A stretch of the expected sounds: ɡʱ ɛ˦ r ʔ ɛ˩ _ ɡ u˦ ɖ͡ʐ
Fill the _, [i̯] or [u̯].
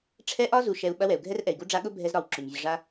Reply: i̯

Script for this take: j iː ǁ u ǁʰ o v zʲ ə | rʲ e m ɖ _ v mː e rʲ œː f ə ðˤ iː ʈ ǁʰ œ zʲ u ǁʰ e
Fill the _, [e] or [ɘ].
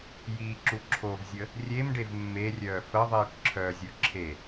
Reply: e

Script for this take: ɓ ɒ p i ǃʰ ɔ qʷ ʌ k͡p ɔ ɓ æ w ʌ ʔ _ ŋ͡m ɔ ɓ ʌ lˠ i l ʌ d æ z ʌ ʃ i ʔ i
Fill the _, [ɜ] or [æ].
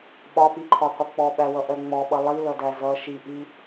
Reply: ɜ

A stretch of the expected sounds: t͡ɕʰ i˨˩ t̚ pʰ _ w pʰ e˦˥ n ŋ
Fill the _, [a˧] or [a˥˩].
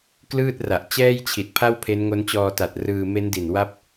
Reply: a˥˩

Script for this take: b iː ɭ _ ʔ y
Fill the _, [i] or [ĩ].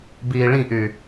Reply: ĩ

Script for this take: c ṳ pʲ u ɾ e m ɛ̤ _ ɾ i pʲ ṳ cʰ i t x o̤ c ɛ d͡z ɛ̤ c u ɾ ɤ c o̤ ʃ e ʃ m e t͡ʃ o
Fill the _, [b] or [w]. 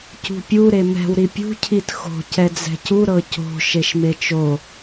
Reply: w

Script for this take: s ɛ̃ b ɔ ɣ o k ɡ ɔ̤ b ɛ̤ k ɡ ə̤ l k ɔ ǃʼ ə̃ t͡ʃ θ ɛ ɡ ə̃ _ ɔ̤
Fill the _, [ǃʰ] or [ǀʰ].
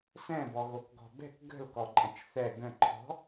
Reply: ǃʰ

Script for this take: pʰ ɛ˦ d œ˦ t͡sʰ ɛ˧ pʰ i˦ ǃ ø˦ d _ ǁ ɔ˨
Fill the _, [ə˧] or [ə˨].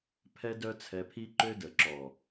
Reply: ə˨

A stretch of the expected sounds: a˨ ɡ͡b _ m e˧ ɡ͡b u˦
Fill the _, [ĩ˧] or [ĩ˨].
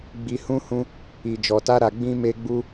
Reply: ĩ˧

